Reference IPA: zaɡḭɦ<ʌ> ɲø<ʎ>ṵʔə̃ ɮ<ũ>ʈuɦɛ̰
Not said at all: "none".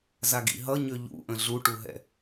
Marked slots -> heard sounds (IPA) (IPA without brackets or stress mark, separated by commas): ʌ, ʎ, u